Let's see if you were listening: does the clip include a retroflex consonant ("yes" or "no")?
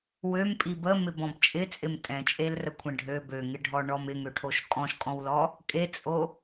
yes